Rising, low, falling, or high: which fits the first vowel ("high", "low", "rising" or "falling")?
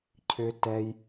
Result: low